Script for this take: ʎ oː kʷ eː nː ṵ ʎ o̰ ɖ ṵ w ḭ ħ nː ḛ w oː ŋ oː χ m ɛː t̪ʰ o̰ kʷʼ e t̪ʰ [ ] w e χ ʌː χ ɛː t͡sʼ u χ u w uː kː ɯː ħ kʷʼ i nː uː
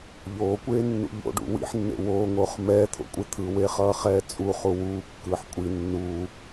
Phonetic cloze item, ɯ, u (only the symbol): ɯ